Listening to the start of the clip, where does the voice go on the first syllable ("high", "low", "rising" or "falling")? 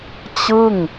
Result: falling